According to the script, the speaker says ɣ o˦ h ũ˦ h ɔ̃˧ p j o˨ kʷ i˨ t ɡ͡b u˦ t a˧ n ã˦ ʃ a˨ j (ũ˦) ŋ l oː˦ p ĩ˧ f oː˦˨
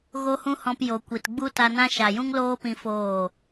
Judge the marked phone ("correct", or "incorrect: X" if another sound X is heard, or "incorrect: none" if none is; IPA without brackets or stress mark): correct